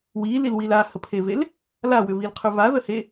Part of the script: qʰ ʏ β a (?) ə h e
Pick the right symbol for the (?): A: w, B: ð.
B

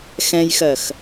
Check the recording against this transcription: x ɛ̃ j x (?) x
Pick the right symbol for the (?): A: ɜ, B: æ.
A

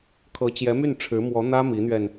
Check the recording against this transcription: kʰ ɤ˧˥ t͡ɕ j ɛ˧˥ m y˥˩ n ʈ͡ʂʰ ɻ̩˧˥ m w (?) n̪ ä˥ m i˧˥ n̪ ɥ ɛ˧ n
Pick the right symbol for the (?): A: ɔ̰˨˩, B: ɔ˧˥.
B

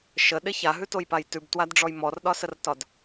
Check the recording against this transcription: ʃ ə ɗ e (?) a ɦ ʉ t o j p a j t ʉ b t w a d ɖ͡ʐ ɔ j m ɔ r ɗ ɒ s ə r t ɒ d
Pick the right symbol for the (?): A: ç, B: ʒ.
A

